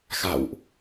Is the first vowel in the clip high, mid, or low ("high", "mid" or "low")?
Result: low